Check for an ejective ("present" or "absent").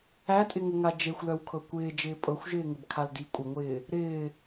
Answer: present